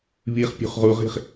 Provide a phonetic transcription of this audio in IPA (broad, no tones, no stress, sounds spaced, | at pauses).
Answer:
β i χ pʲ ṳ χ ʁ u ʁ i̤ χ